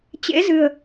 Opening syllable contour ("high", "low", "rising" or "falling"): rising